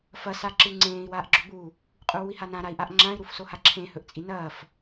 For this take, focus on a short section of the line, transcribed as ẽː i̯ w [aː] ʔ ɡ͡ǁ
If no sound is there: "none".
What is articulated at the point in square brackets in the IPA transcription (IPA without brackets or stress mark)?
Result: aː